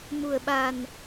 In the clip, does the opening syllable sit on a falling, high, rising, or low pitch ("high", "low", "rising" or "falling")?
low